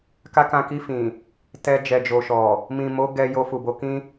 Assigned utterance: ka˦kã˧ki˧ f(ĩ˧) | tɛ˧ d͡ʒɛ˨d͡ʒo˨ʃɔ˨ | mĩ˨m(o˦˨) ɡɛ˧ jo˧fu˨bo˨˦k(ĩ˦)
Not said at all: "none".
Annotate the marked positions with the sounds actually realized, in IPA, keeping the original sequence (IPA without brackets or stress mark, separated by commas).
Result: ĩ˨, o˨˦, ĩ˦